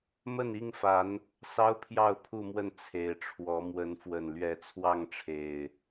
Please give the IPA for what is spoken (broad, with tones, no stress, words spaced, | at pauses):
mə˥˨ni˥˨ŋfa˨˦n | sɑ˦ʊ̯pʰjɑ˥˨ʊ̯pʰu˥˨mwə˥˨n t͡sʰe˨˩ɪ̯ʈ͡ʂʰwɔ˨˦ mwə˨˦nfwə˨˩nlɥɛ˨˦ t͡sʰwɑ˥˨ŋʈ͡ʂʰe˨˩ɪ̯